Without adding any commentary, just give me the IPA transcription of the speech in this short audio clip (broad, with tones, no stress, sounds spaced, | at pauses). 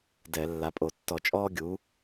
d ɛ˧˩˧ lː a˩˥ pʼ o˧˩˧ tː ɔ˧˩˧ t͡ʃʼ ɔː˥ ɡʲ u˩˥